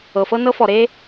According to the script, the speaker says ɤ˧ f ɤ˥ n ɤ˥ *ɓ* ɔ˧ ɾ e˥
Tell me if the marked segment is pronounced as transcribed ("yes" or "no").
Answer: no